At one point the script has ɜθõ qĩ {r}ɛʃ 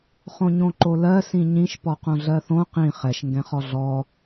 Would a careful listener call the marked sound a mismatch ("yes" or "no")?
yes